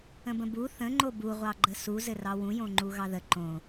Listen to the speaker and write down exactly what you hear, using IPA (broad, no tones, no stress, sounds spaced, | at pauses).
ə̃ b ə̃ b u θ ə̃ ŋ͡ǃ o b u ʁʷ ɑ ɡ͡ǃ ə s u z ɘ r ɑ w ũ j õ ŋ͡ǃ u ɣ ɑ ð ə ǃ õ